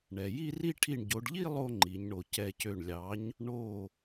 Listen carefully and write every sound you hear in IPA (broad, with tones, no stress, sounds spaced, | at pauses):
ɳ ɛ˩ j i˥˧ r i˥˧ ʈʰ i˧˩ ɳ ɟ o˩˧ ɖ ʎ i˥˧ lˠ o˥˧ ŋ͡ǃ i˩˧ ɲ ɳ o˩ c ɛ˧˩ c ø˧˩ ɳ lʲ ɑ˩˥ ɲ | ɳ o˧˩